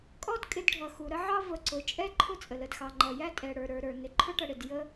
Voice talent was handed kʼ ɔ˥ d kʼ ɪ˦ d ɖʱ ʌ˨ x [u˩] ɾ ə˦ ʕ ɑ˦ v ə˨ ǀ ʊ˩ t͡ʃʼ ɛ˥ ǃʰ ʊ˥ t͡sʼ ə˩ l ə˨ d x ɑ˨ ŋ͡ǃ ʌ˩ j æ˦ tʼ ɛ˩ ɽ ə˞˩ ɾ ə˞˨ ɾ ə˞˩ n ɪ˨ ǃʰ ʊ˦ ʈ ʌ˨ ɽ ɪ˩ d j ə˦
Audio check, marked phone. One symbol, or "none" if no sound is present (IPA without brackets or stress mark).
u˩